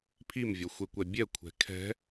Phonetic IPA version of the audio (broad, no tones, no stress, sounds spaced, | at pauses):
pʰ i m vʲ ɔ xʷ e kʷ ɛ bʲ ɛ kʷʰ ɛ̤ kʰ ɛ̤